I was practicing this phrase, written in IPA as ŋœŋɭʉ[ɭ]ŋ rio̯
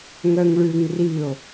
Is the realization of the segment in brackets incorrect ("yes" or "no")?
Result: yes